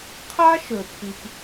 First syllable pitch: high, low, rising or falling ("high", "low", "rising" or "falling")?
high